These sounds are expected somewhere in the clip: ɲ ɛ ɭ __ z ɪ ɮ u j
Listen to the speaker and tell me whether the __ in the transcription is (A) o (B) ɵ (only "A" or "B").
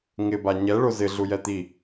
A